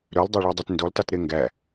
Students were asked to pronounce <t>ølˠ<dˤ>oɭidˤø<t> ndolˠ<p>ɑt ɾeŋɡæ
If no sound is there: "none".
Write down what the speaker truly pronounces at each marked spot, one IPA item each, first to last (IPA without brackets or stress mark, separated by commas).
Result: ɾ, dˤ, t, t